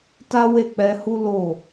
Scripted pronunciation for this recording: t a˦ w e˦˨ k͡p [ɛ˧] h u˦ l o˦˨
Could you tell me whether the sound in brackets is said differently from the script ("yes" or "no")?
no